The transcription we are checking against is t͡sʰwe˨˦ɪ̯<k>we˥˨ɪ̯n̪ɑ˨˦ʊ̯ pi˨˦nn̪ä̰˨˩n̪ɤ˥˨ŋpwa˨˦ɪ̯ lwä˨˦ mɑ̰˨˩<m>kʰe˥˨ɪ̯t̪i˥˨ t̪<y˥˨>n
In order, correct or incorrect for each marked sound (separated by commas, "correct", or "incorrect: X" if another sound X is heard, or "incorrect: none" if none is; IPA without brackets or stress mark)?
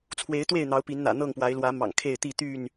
incorrect: t̪, incorrect: ŋ, correct